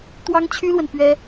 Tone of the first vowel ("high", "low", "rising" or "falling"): high